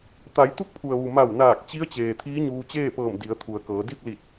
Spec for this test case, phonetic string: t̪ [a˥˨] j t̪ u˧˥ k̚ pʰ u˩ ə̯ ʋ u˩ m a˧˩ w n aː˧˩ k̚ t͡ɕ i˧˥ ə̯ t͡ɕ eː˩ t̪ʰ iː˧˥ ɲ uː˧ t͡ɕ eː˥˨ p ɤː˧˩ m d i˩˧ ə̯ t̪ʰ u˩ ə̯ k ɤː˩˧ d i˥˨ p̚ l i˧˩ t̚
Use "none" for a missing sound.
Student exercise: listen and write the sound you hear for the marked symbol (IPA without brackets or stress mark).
a˩˧